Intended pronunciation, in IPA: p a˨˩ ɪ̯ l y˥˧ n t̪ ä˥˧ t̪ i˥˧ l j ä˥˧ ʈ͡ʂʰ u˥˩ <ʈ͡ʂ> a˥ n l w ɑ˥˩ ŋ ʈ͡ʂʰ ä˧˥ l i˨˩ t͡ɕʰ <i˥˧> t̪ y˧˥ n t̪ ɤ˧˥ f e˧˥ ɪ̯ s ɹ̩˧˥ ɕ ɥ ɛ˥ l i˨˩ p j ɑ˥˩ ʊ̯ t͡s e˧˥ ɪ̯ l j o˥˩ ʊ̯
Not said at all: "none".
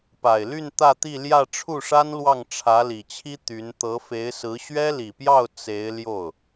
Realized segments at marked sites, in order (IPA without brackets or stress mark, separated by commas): ʂ, i˥